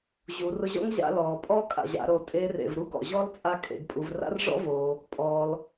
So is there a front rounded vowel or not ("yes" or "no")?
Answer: no